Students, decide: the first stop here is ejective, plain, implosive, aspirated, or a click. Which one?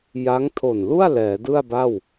aspirated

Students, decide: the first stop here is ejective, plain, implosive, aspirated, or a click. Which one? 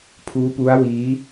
aspirated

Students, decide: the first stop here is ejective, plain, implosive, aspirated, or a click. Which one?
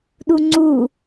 implosive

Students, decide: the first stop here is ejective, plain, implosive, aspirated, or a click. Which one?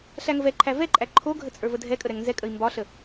click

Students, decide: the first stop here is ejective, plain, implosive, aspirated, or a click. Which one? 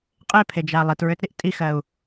ejective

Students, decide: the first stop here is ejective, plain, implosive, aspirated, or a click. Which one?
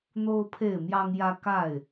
aspirated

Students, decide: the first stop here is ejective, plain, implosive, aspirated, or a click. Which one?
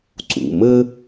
click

